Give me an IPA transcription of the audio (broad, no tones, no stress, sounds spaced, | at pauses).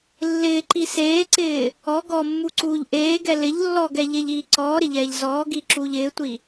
lː ɪː ǃ i s eː ǀ ɪː | ɔ ɡ ɔ mː u ǀ uː ʎ ʔ eː ɡ ɛ l ɪ ʎ lː ɔ ɡ ɛ ʎ e ʎ iː ǀ ɔː ɾ ɪ ʎ ɛː ʎ z ɔː ɡ i ǁ uː ʎ ɪː tʷ i